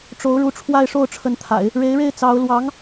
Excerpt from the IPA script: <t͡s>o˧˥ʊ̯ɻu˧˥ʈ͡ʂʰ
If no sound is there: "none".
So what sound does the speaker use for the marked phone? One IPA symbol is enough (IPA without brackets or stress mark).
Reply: ʈ͡ʂ